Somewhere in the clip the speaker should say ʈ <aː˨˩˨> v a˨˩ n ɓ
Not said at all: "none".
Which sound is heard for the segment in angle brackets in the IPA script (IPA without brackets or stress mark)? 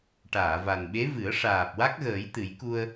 aː˨˩˨